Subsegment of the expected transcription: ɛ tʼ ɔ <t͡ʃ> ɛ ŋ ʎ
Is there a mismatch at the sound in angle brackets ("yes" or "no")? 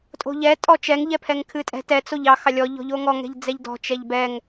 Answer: no